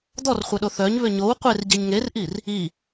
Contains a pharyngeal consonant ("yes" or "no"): no